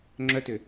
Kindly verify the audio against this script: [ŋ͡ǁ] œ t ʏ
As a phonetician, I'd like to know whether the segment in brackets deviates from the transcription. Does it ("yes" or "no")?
no